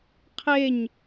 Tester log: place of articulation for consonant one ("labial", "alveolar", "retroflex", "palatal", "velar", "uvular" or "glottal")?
uvular